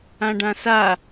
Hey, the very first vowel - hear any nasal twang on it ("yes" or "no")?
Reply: yes